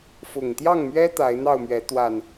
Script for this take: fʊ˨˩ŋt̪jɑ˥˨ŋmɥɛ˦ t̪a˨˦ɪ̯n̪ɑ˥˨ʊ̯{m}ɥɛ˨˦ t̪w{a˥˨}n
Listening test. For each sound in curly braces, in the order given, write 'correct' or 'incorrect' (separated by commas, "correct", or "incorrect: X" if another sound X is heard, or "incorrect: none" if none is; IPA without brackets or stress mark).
correct, incorrect: a˨˩